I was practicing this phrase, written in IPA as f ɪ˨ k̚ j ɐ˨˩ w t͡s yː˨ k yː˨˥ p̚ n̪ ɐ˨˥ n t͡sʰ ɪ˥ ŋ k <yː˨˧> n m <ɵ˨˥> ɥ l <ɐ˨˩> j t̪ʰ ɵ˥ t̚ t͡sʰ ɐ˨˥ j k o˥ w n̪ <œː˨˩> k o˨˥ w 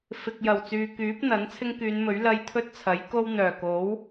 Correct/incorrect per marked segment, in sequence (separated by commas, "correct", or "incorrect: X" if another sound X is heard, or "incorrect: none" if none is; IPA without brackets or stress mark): correct, correct, incorrect: ɐ˧, correct